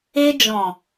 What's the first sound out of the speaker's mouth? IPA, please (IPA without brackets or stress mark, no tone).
e